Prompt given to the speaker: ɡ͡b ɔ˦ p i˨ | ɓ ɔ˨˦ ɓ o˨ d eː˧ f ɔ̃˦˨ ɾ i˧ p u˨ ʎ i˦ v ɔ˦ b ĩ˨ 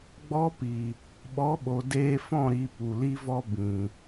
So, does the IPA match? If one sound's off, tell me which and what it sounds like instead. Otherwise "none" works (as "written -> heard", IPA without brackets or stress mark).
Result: ʎ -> l